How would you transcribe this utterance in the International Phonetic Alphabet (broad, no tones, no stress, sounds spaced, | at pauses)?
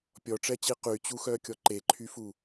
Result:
pʲ ɔ ʈ͡ʂ ɛ t͡ɕ i q y t͡ɕ u x œ kʲ ɔ ǃ e ǃʰ y f u